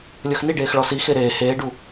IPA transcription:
lʲɤxniɖeːx ɭɔsixe ɾeː heːɖu

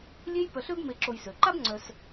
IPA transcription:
lʲe˦jpœ˨ɬø˦b me˨ǁo˨jsø˩ǃa˥b ŋ͡ǀœ˨s

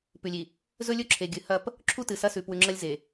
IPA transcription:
pʉ˨lʲi˨ | zɵ˦lʲɵ˦ǁʰe˨ ɡʲɨ˨hɐ˦˨p | ǁʰu˦tɨ˨ sɐ˦sʉ˨ pwʉ˨ŋ͡ǁɐ˦lʲ ze˨

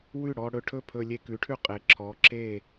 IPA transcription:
wʉ˥˩ɽɔ˧ɽɵ˧ ʈʰɵ˥˩pʰɵ˧lʲe˧ kʉ˩˧ʈʰʉ˧˩qʼe˩˧ ǁʰɔ˩˧ ǁe˧˩

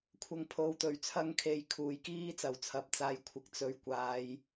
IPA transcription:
kʷʰɐ˧ŋ pʰo˨˧wt̪ɵ˨˥ɥ t͡sʰɐ˥ŋkʰe˧jkʰuː˨˥jkiː˥ t͡sɐ˨wt͡sʰɐ˨˥p̚ t͡saː˨j kʷʰɪ˨k̚t͡sɵ˨ɥ kʷaː˨j

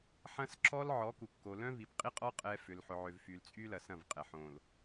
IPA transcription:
ħɐ̃˦s ǁɔ˦l ʕɔ˨˦ku˨kːo˨ lœ̃˦ vi˨pqʼi˦qʼɔ˦ qʼɛ˨ fʏ˨lħʊ˨ʕø˨v fy˨lt͡sʼy˦lɐ˨ sɐ̃˦˨vqʼɛ˨ ħõ˨l

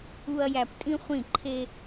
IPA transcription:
u˨ɐ̯ jæ˨ptʼĩ˦χʷĩ˦˨ ǃʰe˦

